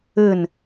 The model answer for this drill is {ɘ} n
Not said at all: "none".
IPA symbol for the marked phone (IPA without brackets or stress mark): ɘ